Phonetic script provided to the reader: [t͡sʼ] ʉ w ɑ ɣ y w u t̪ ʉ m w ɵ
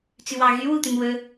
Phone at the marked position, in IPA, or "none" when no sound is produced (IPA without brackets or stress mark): t͡s